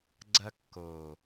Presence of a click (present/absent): present